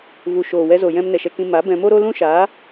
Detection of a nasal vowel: present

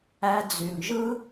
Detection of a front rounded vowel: present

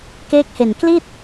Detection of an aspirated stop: absent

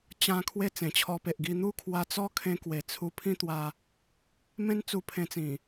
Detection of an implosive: absent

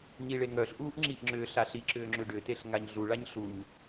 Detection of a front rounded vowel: present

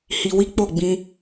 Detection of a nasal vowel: present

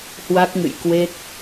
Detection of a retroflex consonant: absent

